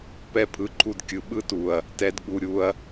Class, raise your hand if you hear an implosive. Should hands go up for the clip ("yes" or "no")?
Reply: yes